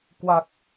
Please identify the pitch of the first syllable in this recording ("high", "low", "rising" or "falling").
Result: low